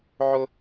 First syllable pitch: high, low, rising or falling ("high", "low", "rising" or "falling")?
high